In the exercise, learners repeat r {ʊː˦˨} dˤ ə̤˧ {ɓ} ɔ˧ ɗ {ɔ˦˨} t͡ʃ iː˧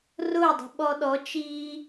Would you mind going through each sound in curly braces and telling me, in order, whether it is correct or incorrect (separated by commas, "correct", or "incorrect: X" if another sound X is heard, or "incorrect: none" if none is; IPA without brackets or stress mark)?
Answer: correct, correct, incorrect: ɔ˨˦